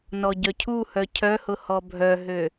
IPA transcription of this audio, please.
nɔɟœcʰuhœ cʰœhʊ hɔbʱœɦø

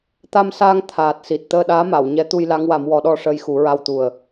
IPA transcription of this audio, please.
t̪a˧msaː˧ŋ t̪ʰaː˨˩t̚si˨˩t̚ t̪əː˧ɗaː˧˥ma˨˩˨w ɲɛ˧˥ t̪u˧jla˧˥ŋwa˨˩˦mwɔ˨˩˦ ɗɔ˧ʂəː˧jxu˨˩˦ɹa˧w t̪u˨˩ə̯

